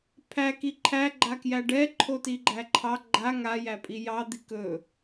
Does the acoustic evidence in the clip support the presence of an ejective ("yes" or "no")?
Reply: yes